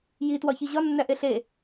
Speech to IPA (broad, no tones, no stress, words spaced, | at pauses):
jitwɒçi ʑɒnːæʔe ɬe